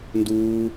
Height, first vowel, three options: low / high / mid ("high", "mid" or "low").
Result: high